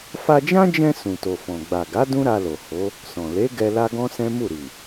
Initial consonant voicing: voiceless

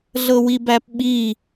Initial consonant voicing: voiced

